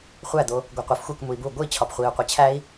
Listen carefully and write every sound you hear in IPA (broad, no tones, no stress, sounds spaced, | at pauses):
χʷ æ d̪ o | ɡʷ e qʷ e f xʷ e k m u i̯ b u ɡʷ i t͡ɕʰ ɒ p χʷ i u̯ qʷ e t͡ɕʰ æ i̯